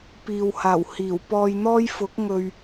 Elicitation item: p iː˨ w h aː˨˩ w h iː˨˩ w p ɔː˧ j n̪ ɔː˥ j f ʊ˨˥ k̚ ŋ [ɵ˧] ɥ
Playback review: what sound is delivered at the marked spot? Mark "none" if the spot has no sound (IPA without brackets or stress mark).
ɵ˧